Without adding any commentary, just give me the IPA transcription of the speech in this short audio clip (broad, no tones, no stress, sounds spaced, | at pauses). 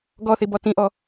ɡ ɔ θ i b ɔ t ĩ ʔ ɔ